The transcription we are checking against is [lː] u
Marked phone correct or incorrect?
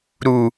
incorrect